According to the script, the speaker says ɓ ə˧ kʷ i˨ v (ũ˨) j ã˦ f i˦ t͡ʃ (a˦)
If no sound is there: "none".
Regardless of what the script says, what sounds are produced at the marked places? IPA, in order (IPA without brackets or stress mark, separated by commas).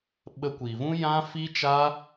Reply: ũ˦, a˦